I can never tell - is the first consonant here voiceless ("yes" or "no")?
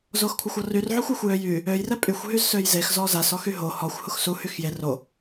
no